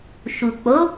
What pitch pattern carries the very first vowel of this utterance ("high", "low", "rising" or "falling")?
low